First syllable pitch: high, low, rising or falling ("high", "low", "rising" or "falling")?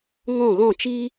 falling